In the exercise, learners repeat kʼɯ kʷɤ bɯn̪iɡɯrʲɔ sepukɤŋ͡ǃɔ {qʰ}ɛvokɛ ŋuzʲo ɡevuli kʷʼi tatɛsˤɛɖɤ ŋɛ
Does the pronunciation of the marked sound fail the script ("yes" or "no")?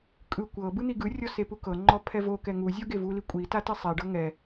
yes